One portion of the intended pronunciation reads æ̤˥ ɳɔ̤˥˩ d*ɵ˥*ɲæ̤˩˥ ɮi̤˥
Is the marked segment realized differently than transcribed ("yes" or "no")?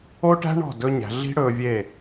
no